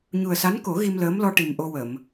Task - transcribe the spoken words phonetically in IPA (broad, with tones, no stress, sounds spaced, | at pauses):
ɲ u˨˩ ə̯ s a˧˥ n k o˨˩˦ ɣ i˧ m l əː˧˥ m l ɔ˧ ʈ i˨˩ m ʔ o˧ w ə˨˩˨ m